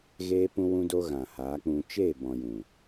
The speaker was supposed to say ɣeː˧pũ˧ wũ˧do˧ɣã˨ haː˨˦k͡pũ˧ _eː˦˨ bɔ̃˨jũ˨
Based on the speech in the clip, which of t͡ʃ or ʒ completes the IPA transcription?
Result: t͡ʃ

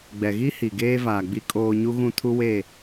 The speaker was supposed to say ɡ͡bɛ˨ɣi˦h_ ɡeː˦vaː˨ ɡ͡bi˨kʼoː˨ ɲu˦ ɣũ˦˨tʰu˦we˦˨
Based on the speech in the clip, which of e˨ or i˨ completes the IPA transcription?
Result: i˨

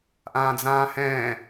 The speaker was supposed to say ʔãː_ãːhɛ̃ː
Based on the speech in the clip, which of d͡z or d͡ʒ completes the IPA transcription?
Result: d͡z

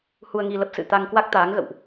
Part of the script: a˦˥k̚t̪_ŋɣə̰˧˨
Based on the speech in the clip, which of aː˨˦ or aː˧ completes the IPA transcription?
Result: aː˨˦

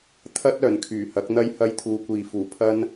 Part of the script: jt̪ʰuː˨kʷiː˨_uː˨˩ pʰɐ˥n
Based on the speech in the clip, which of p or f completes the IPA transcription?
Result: f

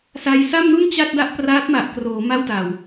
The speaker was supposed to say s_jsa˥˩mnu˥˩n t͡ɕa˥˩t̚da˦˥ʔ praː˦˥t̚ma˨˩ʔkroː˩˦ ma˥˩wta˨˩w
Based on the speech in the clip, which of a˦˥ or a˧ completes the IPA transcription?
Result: a˧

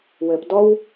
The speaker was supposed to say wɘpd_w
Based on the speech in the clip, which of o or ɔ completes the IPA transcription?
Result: ɔ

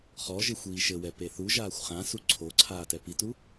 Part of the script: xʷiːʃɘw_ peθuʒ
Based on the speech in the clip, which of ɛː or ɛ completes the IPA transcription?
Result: ɛ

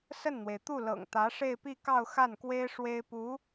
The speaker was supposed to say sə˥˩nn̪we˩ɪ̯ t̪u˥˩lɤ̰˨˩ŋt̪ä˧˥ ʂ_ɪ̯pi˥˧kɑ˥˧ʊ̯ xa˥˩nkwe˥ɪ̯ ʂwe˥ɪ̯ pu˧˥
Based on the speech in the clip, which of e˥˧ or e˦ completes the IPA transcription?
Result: e˥˧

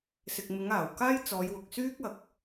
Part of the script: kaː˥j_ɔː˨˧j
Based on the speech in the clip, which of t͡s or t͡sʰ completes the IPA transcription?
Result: t͡s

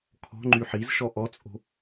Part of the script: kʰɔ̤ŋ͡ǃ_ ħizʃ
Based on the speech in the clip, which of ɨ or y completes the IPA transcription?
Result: y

